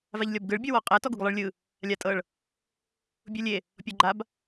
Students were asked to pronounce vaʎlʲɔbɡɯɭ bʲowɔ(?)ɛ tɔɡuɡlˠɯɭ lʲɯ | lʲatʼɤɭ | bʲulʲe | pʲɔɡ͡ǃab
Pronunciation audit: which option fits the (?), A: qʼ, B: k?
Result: A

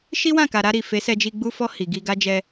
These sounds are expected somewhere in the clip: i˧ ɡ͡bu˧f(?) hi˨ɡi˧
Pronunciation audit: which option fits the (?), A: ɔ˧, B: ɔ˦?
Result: A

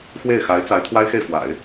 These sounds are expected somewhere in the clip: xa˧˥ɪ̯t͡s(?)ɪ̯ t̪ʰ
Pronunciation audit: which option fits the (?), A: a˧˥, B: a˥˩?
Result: A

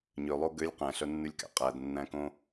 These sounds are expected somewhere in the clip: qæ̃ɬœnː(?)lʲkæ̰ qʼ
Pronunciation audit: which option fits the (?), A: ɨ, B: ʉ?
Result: B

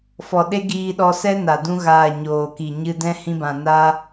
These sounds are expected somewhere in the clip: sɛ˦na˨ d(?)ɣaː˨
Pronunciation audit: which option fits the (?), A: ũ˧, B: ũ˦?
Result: A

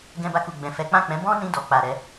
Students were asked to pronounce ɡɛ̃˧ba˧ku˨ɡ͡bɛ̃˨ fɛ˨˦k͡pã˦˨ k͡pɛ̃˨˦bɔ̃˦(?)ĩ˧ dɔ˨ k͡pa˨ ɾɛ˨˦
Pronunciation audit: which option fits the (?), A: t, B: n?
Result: B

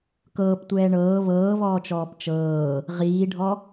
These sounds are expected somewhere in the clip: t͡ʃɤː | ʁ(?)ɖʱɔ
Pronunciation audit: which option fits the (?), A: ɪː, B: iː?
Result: B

